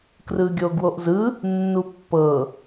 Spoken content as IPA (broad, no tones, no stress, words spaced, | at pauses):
krɯɡʲoɡwoʔzɯ | nːupːɤ